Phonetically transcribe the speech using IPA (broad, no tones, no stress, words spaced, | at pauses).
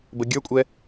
bəɡʲə˞kʷʼɛ